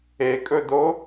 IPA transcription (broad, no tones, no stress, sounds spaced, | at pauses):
e kʼ ɵ d o